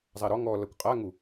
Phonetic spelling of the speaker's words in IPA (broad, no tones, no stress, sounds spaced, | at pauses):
zˤ a ɾ ɔ ŋ ɔ l ʌ kʷ qʼ a ŋ u